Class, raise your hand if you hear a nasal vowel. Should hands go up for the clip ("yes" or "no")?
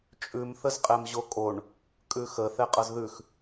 no